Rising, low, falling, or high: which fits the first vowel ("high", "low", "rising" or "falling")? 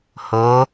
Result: rising